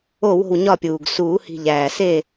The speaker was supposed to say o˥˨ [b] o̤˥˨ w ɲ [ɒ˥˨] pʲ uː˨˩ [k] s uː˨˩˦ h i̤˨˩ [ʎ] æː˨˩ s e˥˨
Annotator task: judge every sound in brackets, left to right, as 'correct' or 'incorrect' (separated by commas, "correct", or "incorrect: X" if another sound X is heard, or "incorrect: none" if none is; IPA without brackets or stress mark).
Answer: incorrect: w, correct, incorrect: ɡ, correct